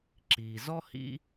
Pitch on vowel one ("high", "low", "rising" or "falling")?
low